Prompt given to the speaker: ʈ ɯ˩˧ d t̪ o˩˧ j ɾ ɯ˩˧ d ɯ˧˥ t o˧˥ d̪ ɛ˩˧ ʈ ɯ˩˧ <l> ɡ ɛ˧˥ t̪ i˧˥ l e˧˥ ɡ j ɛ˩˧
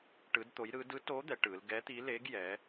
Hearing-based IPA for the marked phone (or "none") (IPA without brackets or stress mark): l